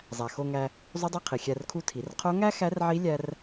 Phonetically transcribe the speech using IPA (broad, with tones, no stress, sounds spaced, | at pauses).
zˤ æ˩ x o˧ ŋ æ˧ | zˤ u˧˥ dˤ o˧˥ qʰ i˩ xʲ æ˧ r kʰ u˧˥ tʰ i˩˧ r qʰ o˧˥ ŋ æ˥ x æ˧˥ r ʕ i˧˥ lʲ æ˥ r